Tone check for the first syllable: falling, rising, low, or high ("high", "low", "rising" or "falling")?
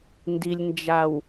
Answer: low